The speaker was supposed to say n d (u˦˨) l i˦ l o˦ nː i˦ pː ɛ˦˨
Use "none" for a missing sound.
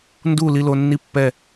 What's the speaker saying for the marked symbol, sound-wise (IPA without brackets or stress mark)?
u˦˨